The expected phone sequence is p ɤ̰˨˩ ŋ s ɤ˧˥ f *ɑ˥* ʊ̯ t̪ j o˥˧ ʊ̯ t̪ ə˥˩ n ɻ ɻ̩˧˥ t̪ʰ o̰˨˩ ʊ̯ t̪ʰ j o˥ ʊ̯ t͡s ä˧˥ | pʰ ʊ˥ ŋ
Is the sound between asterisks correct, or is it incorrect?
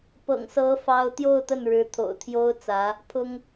correct